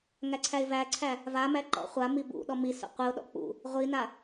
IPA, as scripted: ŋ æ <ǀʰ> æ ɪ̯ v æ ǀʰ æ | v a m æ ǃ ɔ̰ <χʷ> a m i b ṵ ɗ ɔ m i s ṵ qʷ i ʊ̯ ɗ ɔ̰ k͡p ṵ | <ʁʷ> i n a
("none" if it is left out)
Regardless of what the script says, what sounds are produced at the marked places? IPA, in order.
ǀʰ, χʷ, ʁʷ

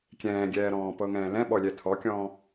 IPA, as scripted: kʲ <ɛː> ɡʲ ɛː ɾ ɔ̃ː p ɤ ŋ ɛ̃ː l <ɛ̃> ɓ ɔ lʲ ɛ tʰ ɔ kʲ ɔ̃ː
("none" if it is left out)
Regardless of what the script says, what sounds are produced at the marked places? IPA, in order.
ɛ̃ː, ɛ̃

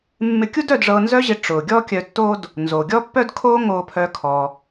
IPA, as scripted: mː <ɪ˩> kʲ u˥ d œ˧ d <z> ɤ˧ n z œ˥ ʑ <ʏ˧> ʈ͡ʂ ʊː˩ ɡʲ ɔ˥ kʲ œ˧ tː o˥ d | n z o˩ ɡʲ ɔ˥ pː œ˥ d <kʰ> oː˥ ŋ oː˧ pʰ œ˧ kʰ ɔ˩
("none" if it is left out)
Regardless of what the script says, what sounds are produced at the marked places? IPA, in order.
ɪ˧, ʐ, ɪ˧, kʰ

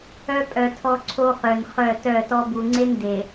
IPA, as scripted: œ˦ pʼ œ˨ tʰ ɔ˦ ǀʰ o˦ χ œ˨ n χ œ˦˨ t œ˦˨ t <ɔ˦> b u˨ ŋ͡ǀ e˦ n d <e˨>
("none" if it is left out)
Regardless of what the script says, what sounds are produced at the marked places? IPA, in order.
ɔ˦, e˨

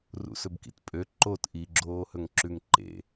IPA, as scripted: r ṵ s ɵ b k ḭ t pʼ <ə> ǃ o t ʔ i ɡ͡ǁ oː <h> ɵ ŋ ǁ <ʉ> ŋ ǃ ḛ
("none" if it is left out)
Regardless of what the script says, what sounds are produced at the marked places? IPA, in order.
ø, h, ʉ

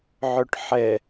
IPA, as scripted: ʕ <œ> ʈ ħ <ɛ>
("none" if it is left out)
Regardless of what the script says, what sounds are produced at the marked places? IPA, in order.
œ, ɛ

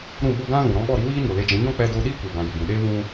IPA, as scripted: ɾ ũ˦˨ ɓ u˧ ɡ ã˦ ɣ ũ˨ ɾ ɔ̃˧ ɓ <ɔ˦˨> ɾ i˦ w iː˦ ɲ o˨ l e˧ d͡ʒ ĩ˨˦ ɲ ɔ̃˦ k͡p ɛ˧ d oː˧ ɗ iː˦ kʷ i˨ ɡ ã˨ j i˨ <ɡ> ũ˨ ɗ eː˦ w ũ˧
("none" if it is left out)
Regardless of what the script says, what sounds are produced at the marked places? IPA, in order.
ɔ˦˨, ɡ

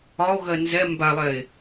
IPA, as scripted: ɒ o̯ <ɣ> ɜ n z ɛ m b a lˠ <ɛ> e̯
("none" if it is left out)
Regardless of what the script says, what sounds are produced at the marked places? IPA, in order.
ɣ, ɛ

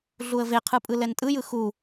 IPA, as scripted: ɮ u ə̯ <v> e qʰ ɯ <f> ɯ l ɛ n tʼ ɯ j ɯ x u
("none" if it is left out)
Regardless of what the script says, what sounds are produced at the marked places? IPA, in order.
v, pʼ

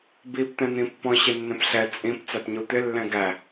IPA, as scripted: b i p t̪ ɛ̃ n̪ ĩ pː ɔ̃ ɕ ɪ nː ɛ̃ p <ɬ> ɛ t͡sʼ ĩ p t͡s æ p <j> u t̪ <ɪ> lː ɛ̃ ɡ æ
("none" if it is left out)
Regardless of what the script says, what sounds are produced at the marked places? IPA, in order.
ɬ, ɲ, ɪ

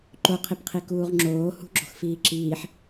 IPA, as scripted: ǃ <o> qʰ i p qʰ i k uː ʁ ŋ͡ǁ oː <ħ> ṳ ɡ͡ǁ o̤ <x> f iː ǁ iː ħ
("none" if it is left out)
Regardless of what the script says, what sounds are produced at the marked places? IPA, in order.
o, h, x

